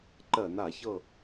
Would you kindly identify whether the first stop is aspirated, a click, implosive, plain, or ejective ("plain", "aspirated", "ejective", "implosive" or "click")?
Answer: click